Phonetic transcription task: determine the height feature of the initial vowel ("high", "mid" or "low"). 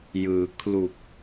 high